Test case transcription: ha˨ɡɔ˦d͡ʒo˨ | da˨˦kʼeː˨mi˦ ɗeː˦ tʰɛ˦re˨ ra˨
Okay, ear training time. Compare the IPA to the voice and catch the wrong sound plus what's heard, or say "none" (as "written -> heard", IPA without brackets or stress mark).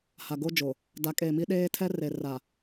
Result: ɔ˦ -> o˦